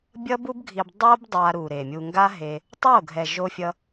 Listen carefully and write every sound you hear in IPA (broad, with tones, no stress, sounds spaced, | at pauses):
bʲ ʌ˦ b u˦ b ɡʱ i˧ b dˤ o˦ b dˤ a˧ ɾ u˨ ɾ e˨ mʲ u˧ ŋ ɡ a˦ ɦ e˧ | tˤ o˦˨ ɡʱ ɛ˨ ʒ o˧ fʲ ʌ˧